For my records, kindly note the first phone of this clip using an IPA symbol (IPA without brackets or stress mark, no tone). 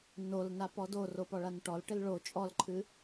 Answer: n